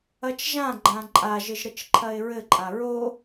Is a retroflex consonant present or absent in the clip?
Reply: absent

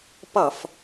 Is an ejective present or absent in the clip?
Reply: absent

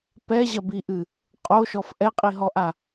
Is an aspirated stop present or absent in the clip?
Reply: absent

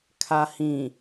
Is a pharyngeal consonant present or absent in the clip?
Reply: absent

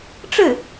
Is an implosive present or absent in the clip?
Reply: absent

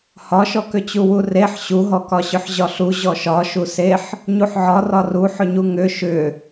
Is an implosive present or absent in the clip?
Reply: absent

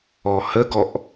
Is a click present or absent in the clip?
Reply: absent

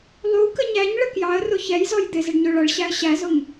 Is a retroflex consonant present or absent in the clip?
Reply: present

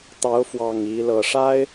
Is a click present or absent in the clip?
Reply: absent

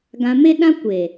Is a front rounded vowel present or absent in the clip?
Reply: absent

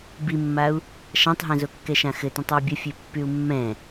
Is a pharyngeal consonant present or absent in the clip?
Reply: absent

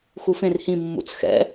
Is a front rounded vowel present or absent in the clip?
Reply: absent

